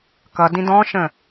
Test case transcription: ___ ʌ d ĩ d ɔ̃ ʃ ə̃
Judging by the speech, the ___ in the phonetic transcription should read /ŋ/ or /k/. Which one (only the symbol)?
k